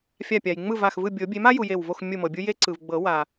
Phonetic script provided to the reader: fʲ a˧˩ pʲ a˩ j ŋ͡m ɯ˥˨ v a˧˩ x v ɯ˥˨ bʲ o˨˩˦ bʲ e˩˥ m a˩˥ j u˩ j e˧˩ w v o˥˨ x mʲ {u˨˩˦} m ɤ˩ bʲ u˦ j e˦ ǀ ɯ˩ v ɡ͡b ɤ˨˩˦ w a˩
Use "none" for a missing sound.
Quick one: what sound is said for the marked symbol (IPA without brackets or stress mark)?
u˧˩